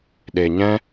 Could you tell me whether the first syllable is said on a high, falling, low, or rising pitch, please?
low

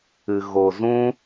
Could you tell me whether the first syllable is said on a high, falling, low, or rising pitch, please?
low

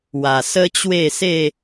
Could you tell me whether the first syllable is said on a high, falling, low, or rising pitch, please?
low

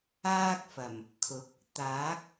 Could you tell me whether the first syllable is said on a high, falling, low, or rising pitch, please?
high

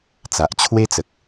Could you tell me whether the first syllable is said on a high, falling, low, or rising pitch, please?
low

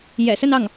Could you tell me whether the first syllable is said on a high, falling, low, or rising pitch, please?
low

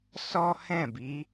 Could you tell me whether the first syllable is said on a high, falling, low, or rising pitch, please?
high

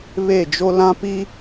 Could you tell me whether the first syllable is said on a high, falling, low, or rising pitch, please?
falling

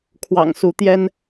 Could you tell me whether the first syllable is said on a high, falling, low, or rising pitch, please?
low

